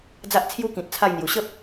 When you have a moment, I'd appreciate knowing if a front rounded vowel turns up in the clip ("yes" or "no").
no